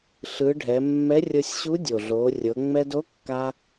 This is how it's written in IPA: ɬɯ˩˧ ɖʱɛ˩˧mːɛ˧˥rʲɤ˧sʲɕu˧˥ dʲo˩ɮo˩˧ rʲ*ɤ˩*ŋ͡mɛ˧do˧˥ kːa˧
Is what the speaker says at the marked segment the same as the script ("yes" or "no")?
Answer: no